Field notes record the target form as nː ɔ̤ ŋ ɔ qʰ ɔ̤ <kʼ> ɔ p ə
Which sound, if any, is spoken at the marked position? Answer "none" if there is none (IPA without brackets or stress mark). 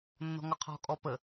kʼ